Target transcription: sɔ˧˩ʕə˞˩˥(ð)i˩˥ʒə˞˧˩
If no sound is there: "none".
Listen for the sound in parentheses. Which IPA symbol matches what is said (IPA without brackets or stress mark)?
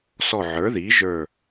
ð